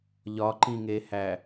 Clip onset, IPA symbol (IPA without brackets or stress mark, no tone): ʎ